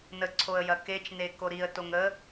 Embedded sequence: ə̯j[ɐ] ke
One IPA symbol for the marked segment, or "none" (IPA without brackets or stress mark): ɐ